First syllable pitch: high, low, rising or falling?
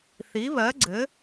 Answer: rising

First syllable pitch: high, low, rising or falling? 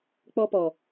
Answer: high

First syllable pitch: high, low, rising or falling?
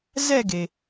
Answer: falling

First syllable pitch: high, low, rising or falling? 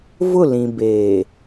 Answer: falling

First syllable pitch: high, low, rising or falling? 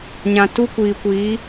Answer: low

